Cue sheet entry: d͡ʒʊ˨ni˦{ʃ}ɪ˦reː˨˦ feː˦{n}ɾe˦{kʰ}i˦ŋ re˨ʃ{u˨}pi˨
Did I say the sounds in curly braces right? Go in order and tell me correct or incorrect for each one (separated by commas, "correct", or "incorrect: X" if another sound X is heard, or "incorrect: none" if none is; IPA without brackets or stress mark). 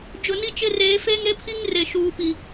incorrect: t͡ʃ, incorrect: ŋ, incorrect: pʰ, incorrect: uː˨